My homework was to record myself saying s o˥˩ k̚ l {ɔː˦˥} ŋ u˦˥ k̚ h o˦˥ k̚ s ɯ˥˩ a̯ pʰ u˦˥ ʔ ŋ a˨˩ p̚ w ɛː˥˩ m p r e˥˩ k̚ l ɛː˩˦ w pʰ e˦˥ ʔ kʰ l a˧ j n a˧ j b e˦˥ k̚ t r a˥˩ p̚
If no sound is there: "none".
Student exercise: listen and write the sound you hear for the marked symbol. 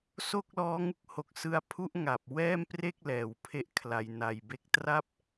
ɔː˦˥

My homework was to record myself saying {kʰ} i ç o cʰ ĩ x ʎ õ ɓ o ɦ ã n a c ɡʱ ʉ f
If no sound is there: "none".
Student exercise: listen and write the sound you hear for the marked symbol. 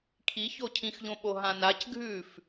kʰ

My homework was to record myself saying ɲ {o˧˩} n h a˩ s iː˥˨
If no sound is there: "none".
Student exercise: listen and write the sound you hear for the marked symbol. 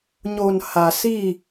o˧˩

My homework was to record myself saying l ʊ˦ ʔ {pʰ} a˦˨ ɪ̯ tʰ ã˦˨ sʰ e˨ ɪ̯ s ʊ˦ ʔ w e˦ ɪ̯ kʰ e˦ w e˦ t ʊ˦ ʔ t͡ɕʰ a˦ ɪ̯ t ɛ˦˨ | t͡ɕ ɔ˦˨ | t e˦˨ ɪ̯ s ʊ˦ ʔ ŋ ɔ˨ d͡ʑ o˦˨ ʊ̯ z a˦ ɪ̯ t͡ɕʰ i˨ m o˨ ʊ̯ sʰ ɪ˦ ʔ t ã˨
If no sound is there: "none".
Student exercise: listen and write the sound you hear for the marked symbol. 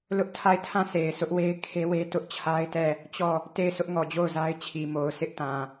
tʰ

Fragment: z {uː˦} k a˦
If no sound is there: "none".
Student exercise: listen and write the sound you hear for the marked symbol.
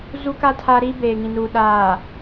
u˦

